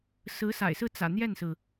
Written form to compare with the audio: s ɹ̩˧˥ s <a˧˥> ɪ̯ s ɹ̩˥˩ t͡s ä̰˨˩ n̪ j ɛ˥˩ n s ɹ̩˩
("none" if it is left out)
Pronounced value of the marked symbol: a̰˨˩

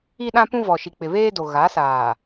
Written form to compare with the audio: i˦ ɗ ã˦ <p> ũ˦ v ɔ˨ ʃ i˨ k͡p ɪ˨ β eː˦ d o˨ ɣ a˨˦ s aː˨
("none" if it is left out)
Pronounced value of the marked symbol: p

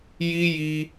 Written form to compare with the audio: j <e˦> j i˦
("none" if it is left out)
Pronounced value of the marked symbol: i˦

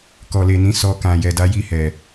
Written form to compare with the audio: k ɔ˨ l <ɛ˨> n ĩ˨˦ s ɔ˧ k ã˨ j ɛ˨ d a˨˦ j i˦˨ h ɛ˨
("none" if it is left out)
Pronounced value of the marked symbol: e˨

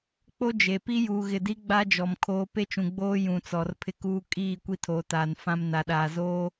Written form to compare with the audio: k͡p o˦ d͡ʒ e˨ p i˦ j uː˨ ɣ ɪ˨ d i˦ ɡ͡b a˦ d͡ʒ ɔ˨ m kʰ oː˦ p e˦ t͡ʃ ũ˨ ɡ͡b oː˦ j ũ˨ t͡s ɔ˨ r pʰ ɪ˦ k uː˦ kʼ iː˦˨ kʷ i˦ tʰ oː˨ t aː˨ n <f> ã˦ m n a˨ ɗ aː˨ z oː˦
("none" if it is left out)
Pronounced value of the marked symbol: f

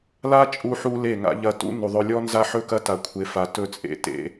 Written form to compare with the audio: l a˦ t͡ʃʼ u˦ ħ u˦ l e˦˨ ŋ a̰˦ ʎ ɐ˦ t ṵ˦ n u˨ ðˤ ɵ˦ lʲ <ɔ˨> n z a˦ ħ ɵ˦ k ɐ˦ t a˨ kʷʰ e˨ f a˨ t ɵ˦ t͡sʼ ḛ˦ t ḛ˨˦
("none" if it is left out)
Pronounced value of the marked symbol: ɔ˦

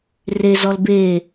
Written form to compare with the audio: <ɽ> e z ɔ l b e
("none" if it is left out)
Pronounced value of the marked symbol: r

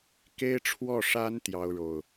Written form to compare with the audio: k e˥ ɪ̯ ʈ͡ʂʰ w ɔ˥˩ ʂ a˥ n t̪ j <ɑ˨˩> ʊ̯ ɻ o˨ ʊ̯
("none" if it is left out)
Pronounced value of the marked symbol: ɑ˥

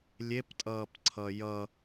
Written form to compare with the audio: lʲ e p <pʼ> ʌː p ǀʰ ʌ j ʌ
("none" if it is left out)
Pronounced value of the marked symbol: tʼ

